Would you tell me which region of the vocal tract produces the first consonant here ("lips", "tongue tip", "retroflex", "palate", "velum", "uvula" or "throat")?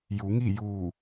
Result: palate